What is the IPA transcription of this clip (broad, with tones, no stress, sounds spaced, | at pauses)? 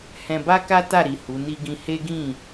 h ɛ̃˧ b a˦ k a˦ t a˦˨ ɾ i˨ h u˨˦ n i˦ ɡ ĩ˦ h e˦ ɡ ĩ˦˨